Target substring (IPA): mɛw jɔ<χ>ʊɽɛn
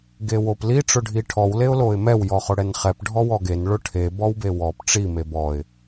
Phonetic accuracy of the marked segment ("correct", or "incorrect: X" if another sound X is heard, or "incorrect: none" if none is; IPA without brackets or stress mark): correct